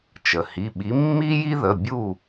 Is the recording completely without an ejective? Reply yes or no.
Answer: yes